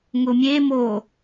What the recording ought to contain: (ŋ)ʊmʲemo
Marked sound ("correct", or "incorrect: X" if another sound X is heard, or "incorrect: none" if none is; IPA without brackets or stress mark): correct